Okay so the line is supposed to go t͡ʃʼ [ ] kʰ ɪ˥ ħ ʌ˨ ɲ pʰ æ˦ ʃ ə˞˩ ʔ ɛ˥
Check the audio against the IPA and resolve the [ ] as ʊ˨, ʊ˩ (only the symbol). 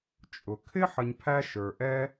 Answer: ʊ˩